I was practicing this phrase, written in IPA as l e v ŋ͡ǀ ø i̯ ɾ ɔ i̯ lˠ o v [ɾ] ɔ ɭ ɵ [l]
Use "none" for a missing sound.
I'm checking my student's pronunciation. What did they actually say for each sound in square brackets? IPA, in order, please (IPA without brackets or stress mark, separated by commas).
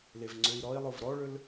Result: ɾ, l